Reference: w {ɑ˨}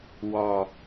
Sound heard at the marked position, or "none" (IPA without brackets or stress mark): ɒ˨